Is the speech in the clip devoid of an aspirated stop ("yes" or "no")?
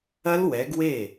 yes